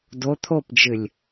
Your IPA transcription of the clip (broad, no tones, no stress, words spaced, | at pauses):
do t̪ʰopd͡ʒɨlʲ